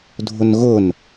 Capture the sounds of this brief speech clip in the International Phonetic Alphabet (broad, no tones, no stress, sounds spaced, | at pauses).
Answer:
dʱ ʊ n ɣ ʊ n